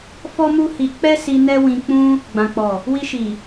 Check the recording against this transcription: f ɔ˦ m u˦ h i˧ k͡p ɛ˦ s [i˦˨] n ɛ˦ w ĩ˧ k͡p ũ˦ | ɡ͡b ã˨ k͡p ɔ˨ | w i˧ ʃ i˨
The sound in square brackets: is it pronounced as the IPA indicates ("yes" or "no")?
no